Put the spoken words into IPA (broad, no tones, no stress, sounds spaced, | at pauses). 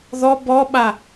ð ɔ b ɔ ɓ a